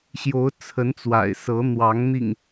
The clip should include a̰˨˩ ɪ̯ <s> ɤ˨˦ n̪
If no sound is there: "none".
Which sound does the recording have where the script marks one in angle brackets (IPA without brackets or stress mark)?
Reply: s